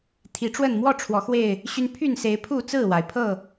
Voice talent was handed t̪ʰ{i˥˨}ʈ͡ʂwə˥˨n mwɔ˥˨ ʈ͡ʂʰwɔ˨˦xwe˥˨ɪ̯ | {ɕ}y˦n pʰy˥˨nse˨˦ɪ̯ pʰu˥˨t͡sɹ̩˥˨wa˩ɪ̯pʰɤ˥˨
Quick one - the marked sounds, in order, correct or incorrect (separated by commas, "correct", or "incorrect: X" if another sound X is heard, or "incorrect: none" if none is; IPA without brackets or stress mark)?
incorrect: i˨˦, correct